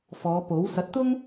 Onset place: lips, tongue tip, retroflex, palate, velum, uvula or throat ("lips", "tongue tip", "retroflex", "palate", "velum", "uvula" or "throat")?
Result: lips